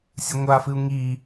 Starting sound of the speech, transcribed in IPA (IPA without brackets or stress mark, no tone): sʲ